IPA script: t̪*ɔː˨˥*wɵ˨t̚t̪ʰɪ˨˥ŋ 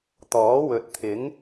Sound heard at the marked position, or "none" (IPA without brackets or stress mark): ɔː˨˥